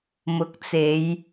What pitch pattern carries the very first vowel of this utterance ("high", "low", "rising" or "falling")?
rising